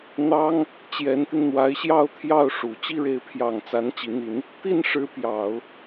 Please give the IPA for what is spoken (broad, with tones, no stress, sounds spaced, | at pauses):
n̪ ɑ˥ ŋ | t͡ɕ j ɛ˧˥ n t̪ i˧ n n̪ w a˧˥ ɪ̯ ɕ j ɑ˥˧ ʊ̯ t̪ʰ j ɑ˥˩ ʊ̯ ʂ u˨˩ t͡ɕ i˥˩ ɻ e˧˥ ɪ̯ pʰ j ɑ˨˩ ŋ t͡s a˧˥ n t͡ɕ i˧˥ n̪ i˧˥ n | t̪ i˥˩ n ʂ ɻ̩˧˥ p j ɑ˨˩˦ ʊ̯